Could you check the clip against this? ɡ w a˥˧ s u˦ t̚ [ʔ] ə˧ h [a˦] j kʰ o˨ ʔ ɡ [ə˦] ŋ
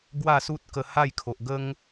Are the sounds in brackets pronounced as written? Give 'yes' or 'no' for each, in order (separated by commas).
no, no, yes